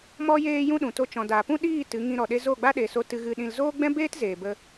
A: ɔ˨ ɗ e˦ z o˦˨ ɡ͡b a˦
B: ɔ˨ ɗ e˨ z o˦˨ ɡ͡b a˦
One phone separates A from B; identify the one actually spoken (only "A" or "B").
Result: A